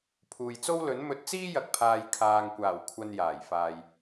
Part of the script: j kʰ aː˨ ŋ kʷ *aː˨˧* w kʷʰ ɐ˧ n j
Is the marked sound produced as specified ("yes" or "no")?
no